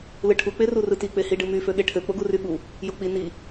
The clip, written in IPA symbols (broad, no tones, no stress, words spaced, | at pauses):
lɯʈʰu k͡perurɯti k͡pehiɖɯmy føɠeʈʰø k͡poɡuryɠu | jok͡pi ni